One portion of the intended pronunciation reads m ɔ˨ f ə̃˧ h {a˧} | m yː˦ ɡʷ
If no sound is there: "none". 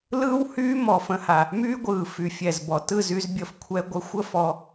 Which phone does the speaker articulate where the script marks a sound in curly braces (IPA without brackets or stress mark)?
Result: a˨